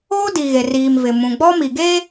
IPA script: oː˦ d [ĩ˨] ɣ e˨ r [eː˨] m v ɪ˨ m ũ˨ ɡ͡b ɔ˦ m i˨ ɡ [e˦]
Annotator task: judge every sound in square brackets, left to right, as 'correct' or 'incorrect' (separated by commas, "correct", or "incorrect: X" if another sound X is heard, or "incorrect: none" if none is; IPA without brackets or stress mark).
incorrect: i˨, incorrect: iː˨, correct